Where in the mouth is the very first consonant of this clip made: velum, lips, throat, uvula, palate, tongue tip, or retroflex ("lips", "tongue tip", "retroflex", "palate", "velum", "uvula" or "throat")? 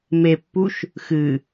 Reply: lips